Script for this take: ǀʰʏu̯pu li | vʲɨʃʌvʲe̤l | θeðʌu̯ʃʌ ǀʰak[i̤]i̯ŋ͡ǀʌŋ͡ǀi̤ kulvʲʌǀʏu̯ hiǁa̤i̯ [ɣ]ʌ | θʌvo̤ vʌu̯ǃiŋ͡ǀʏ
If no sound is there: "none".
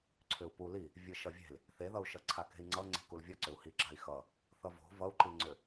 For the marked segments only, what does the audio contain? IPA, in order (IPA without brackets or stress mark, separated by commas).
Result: e̤, x